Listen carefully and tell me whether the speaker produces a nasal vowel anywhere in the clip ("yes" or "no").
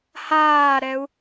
no